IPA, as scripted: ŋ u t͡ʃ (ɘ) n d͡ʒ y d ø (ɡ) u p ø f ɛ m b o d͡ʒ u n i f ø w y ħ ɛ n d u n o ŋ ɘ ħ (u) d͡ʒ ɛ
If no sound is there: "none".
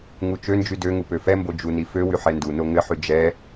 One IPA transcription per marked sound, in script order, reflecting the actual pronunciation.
ø, ŋ, y

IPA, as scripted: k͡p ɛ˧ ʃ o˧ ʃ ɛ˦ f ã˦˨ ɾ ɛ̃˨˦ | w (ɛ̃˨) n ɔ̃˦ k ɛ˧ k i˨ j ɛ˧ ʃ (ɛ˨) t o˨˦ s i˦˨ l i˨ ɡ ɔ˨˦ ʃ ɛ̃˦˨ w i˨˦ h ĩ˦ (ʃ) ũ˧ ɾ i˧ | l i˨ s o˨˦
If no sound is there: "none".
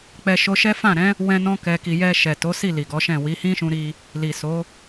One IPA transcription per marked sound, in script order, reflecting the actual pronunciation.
ɛ̃˦, ɛ˨, ʃ

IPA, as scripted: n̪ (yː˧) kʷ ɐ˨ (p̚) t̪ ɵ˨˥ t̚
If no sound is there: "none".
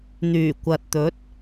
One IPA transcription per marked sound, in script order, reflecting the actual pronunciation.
yː˨˩, t̚

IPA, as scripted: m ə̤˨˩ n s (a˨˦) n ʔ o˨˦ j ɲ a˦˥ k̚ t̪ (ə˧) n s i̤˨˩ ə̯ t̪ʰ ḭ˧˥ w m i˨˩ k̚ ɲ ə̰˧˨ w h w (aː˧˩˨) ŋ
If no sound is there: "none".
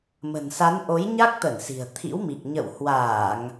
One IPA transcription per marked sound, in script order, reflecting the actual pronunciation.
a˨˦, ə˧˩, aː˧˩˨

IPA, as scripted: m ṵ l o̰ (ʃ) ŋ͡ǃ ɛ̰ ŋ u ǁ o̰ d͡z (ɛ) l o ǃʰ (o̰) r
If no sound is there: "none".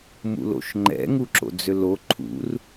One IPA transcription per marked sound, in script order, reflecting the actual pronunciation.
ʃ, ø, ṵ

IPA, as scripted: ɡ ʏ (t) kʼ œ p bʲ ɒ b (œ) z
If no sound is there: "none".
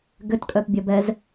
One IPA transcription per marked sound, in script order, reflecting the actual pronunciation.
t, ɛ

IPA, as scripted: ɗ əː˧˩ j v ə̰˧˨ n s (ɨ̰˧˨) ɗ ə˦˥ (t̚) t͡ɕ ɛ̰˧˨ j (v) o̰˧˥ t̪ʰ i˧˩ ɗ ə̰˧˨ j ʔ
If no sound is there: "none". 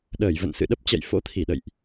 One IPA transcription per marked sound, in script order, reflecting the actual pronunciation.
ɨ̰˧˨, p̚, f

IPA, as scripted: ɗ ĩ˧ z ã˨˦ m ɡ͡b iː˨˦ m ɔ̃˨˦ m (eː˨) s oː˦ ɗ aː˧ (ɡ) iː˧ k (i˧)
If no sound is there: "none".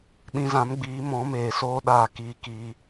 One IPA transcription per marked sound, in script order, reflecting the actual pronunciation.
eː˨, k, i˧

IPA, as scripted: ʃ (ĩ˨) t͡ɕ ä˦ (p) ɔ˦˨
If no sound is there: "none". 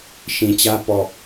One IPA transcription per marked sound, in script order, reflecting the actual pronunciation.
ĩ˨, p

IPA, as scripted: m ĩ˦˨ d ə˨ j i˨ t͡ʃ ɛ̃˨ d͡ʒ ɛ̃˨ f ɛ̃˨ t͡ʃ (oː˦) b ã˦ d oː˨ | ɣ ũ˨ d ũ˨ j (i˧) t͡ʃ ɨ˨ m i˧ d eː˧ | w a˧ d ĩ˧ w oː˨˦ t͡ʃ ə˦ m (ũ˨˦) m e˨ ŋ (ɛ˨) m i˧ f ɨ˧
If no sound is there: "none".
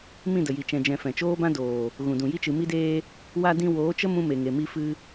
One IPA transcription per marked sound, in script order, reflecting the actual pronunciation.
oː˦, i˧, ũ˧, e˨

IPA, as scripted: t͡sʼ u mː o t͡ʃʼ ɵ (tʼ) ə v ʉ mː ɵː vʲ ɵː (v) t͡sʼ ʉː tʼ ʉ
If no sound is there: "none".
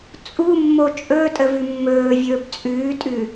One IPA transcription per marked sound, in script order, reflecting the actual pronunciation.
tʼ, b

